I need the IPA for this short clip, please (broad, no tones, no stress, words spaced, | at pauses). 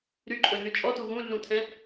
ɾyǃʼɵɮy t͡ʃʼɔtu ɣũɮũtʰɛ̃